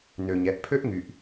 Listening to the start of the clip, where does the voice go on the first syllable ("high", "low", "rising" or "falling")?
low